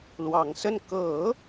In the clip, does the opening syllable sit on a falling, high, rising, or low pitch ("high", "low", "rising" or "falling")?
low